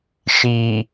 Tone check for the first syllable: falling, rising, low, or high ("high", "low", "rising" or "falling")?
low